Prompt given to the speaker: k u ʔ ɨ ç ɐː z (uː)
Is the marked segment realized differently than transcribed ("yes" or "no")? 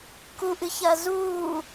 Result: no